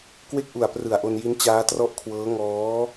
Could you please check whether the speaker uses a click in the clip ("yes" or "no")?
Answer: no